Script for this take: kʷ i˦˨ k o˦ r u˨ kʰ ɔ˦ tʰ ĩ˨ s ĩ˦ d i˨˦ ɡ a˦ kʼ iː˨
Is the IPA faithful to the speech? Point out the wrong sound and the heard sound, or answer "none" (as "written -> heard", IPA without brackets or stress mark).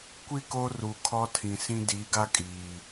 none